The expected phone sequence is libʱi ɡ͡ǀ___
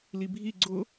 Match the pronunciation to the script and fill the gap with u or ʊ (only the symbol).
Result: ʊ